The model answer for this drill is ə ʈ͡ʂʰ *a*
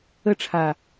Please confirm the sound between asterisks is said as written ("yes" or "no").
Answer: yes